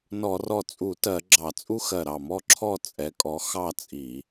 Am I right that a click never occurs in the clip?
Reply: no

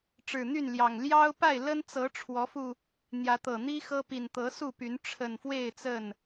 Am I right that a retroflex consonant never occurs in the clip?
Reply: no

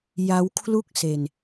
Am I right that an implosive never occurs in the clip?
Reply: yes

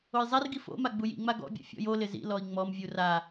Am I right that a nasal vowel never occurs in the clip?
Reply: yes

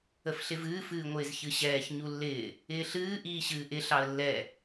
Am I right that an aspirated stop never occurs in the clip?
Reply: yes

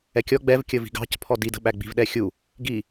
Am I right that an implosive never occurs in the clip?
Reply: no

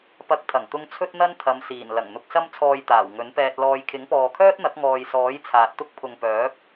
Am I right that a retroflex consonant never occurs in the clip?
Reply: yes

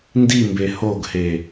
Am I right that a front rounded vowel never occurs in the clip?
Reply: yes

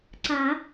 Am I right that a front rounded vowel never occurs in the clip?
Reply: yes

